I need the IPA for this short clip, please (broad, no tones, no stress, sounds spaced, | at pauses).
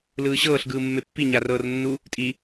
l ɯː ɕ ɤː ɬ ɡ ɯː mː e pː i ɲ a r ɤː r nː u | tʼ i